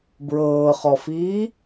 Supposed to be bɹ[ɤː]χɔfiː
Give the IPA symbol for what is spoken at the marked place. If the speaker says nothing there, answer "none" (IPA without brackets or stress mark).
ɤː